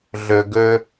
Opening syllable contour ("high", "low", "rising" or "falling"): low